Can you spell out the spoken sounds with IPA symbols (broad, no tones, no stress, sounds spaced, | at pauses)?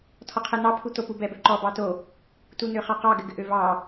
tʰ ɔ qʰ ɛ n̪ ɑ pʰ u t̪ o p u b ɛ b ø ǃ ɔ b ɑ t o | t u n̪ ø χ ɑ q ɑ ɡ ɘ ɡ ɘ ʔ ø v ɑ